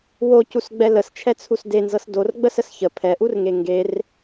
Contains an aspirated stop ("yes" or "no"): yes